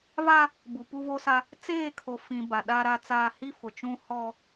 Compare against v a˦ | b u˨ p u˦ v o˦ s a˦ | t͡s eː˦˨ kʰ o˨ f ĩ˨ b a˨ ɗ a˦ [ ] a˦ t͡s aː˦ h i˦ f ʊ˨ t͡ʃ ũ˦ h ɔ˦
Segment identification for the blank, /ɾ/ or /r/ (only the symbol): ɾ